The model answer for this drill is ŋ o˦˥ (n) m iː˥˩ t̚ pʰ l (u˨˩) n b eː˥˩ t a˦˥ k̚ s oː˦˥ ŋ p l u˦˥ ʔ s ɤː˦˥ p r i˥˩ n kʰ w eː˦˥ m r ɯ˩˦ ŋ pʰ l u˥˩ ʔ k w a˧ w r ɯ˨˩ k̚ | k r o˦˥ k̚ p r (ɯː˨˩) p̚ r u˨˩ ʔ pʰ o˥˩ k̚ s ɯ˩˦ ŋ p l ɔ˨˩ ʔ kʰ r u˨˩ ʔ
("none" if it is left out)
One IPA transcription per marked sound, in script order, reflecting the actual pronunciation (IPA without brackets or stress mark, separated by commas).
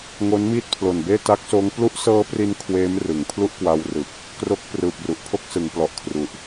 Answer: n, o˨˩, ɯː˨˩